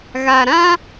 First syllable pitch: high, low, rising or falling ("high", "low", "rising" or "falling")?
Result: low